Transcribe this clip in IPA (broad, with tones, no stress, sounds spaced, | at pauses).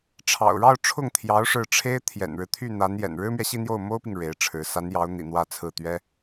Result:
ʈ͡ʂʰ ɑ̰˨˩ ʊ̯ ɻ ɑ˥˧ ʊ̯ ʈ͡ʂʰ ʊ˥˩ ŋ t̪ʰ j ɑ˧˥ ʊ̯ ʂ ɻ̩˥˩ ʈ͡ʂʰ e˥ ɪ̯ t̪ʰ j ɛ̰˨˩ n ɻ ɻ̩˦ t̪ʰ y˥˩ n̪ a˧˥ n j ɛ̰˨˩ n ɻ ɻ̩˥ m ɥ ɛ˨ ɕ i˥˧ n̪ j o˥˩ ʊ̯ m o˥ ʊ̯ p i˨ ŋ ɻ e˧˥ ɪ̯ ʈ͡ʂʰ ɻ̩˧˥ s a˧˥ n j ɑ˧˥ ʊ̯ n̪ ḭ˨˩ n̪ w ä˥˧ t͡sʰ ɹ̩˥˩ t̪ ɥ ɛ˥